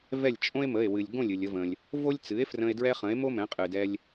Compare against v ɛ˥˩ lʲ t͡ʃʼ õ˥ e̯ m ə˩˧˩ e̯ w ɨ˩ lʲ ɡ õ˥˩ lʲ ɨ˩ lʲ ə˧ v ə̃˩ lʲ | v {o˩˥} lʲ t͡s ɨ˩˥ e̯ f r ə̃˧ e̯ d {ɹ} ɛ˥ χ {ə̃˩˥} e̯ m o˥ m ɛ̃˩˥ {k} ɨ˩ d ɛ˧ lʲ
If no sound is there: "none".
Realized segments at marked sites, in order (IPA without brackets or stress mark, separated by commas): o˥, ɹ, ə̃˩˥, qʼ